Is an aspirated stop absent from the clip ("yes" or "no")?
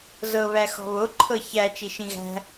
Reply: no